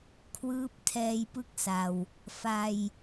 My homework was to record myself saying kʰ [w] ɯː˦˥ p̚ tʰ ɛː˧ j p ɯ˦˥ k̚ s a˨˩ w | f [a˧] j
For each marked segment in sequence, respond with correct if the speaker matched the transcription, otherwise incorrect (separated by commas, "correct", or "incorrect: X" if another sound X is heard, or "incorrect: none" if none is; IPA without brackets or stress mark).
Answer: correct, correct